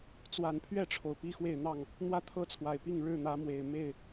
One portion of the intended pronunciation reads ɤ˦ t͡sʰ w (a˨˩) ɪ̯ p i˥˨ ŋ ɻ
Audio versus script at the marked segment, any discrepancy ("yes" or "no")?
no